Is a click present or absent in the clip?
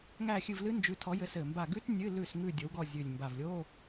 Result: absent